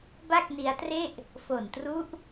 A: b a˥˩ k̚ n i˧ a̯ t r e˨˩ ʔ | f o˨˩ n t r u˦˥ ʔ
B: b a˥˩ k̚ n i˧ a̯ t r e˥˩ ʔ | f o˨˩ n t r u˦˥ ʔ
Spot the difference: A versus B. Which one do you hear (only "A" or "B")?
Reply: B